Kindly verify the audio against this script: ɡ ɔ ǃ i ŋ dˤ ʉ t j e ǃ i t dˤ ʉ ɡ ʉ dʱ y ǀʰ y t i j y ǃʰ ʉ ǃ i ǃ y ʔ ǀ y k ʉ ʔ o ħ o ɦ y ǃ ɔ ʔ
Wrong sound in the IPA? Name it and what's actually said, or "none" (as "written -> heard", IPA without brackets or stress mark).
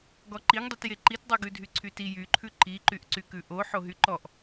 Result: none